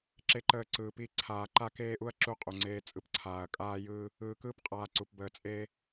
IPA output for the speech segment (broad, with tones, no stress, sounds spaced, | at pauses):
ǁ e˨ ǃ əː˨ ǀ ɯː˨ p i˦˨ ǀʰ aː˨ ǃ a˦ k eː˦ ʔ u˦ ɐ̯ ǁ u˦ qʼ u˨ ŋ͡ǀ eː˦ t͡sʼ ɯ˦ p ǀʰ aː˨ ɐ̯ kʼ aː˦ j ɯː˦ | ɯː˨ k ɯː˦ p qʼ aː˨ ǀ u˨ p b əː˨ t͡sʼ eː˦